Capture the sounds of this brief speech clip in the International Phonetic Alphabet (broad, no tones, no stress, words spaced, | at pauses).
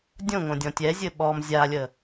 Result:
dʲõŋõdʲɔ̃ tʲɛzʲɘ ɓɔm zʲalʲə